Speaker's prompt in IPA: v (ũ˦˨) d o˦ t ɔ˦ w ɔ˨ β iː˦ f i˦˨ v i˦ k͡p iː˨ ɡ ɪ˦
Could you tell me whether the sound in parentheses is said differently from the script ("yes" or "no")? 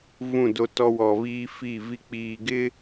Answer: no